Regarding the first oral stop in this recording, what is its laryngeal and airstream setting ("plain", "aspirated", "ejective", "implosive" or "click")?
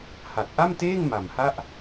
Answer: plain